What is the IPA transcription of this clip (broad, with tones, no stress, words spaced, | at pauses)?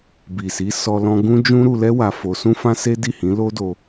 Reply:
bi˨si˨˦ sɔ˧lɔ̃˧ ɡũ˦ d͡ʒũ˦ɾu˧lɛ˦ wa˧fo˧sũ˦fã˦ se˦ di˦˨hĩ˨˦lo˦do˧